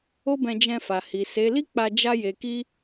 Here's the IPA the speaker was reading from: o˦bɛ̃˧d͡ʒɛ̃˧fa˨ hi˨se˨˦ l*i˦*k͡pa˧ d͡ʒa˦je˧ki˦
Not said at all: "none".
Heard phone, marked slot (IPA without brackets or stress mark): i˦